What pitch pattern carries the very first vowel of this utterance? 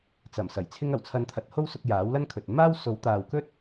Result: low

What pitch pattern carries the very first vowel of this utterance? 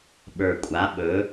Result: low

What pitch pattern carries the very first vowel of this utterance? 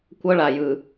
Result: high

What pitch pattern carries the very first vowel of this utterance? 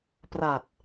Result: low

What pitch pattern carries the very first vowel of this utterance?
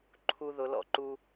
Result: high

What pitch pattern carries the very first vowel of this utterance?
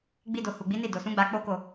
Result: high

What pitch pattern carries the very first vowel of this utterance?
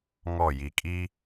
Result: falling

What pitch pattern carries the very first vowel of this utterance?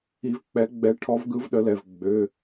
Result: rising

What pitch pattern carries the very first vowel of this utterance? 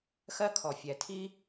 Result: high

